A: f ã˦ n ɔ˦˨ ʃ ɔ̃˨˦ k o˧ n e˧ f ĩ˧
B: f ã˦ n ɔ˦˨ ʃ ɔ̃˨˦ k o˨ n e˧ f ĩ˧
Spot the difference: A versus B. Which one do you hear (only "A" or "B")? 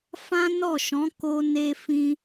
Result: A